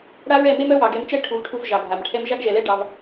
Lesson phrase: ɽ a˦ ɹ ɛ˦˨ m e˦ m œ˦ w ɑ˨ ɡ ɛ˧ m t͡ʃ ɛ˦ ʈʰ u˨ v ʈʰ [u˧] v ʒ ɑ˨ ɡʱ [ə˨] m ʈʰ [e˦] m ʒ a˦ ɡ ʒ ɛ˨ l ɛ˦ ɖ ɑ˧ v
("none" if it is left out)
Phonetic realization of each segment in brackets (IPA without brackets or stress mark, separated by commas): u˧, a˨, ɛ˦